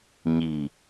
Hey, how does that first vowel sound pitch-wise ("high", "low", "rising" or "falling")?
low